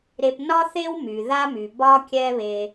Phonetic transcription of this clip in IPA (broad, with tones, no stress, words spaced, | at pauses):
ɾe˧p nɒ˦θe˦w my˨ða˦my˨ bɒ˦kʲɛ˦βe˧